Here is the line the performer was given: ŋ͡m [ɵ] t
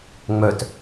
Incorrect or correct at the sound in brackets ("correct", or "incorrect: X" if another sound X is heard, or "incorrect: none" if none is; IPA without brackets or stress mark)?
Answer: incorrect: œ